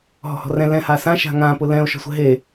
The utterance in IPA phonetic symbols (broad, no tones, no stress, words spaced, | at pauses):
ɦɔ̤hɔ̤rɛ̃ lɛ̃ hasã ʃa̤ŋã pʊlɛ̃o̯ ʃɔ̤sʷɛ̤ɦe